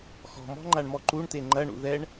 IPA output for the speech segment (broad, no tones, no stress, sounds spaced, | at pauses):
x ɔ̤ m ɔ̤ ŋ͡ǃ a ɳ m ɔ ǃ u ɳ t e ŋ͡ǃ ɐ ɳ ṵ ð ɛ ɳ